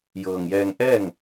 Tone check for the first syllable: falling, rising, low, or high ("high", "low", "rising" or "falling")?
low